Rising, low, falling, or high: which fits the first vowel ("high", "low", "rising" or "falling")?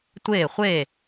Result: falling